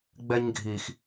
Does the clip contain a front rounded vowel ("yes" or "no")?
no